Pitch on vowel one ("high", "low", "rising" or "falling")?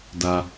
low